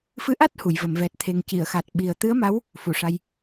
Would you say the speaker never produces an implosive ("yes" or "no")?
no